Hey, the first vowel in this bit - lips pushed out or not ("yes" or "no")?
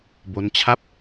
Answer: yes